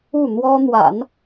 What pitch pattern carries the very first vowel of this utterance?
falling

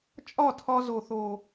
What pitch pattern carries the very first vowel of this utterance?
falling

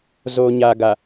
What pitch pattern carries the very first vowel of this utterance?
low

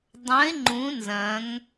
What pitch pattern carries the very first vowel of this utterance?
rising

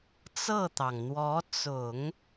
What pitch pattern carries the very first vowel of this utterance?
falling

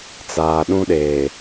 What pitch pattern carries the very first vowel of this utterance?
low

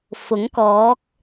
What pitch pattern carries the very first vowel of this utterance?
rising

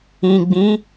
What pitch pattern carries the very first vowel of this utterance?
low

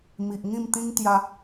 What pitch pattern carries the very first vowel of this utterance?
low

